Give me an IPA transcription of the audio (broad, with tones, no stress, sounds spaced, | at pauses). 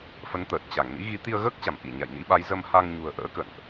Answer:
f ə˨˦ n t̪ əː˨˩ t̚ t͡ɕ a˧˩ ŋ n ḭ˧˥ ɣ i˨˦ t̪ i˧ ə̯ ɣ əː˦˥ k̚ t͡ɕ a˧˩ m ʔ i˧˩ ɲ a̰˧˨ j n ḭ˧˥ ɓ a˨˦ j z ə˧ m h a˧ ŋ ɲ ṳ˨˩ ə̯ ʔ ə̰ː˧˥ k ə̰˧˨ n ʔ